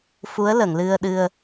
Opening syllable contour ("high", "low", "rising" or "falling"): rising